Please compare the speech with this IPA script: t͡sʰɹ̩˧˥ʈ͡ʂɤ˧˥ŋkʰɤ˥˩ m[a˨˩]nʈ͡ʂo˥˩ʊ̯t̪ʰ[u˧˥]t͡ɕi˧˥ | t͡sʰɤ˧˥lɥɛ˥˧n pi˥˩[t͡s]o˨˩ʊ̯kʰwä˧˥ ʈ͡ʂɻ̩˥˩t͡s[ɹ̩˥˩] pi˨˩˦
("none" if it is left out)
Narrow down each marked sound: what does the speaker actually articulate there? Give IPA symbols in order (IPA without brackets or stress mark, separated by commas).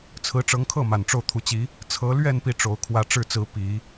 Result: a˨˩, u˧˥, ʈ͡ʂ, ɹ̩˧˥